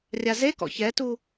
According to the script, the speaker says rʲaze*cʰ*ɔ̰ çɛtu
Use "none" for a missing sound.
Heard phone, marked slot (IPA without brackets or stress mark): k